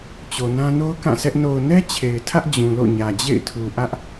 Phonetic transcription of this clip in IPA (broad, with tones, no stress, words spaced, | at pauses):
t͡ɕo˨nã˦ no˦ʊ̯ kã˦˨sʰɛ˦ʔ no˨ʊ̯nɛ˦ t͡ɕʰe˨ɪ̯tʰä˦ʔ d͡ʑũ˨lo̰˦˨ɲä˨ d͡ʑḛ˦˨ɪ̯tʰu˨ʔä˦ʔ